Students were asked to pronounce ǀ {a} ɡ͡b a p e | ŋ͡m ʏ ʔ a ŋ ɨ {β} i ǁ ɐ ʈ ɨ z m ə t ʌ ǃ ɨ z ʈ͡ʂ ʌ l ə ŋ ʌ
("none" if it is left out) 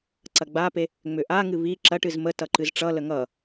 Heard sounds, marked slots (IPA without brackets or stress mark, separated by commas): ɐ, β